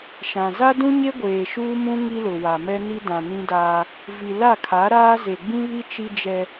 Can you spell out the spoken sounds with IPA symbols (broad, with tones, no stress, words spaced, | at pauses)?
ʃã˨ za˦dũ˦ɲe˦ɡʷeː˨ ʃuː˦mũ˦ ŋi˦lʊ˨wa˨ mɛ˦ni˦ dã˨nĩ˦daː˦ | vi˨la˦˨kʰa˨˦ɾaː˦ ze˨ɡ͡bĩ˦βi˦ t͡ʃi˦d͡ʒɛ˦